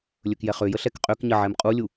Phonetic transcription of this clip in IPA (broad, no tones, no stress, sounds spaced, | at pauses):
lʲ ɵ k j ɛ χ ø j ə ɬ ɛ k qʼ ø k ɲ ə ʕ ɛ m qʼ u lʲ u